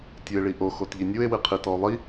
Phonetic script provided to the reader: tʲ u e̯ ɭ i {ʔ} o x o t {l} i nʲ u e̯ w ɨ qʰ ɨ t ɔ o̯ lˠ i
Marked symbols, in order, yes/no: yes, no

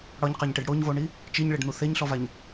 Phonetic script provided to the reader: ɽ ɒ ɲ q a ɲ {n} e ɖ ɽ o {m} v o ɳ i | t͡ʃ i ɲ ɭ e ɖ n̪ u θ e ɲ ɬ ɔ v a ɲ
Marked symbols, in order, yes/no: no, no

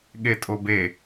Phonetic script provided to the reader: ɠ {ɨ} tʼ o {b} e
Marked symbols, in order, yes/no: no, yes

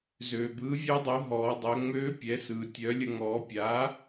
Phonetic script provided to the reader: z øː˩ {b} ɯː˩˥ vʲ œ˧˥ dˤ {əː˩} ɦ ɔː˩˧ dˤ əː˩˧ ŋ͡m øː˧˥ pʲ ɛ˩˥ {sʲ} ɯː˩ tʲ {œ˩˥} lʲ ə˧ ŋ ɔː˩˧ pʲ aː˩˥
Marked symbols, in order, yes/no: yes, no, no, yes

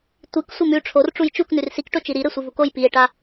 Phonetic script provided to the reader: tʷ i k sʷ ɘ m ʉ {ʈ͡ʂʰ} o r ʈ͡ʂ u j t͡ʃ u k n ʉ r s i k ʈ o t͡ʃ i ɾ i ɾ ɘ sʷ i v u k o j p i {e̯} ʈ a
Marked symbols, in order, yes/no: yes, yes

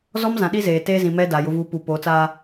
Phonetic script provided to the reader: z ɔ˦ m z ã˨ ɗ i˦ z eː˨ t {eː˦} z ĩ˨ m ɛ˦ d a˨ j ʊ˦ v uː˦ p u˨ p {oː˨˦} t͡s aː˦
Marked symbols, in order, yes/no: yes, yes

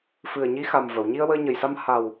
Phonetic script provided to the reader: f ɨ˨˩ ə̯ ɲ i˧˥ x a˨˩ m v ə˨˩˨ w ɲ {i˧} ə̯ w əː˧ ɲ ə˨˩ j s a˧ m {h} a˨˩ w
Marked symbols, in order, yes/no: yes, yes

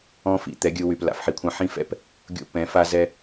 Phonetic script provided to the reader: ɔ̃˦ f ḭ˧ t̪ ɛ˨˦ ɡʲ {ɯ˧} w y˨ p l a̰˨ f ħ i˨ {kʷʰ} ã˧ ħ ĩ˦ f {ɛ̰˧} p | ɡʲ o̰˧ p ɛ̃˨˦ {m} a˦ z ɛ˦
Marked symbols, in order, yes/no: yes, yes, no, no

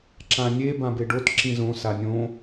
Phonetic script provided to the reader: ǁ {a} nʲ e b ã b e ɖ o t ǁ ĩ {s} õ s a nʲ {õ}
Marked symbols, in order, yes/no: no, no, yes

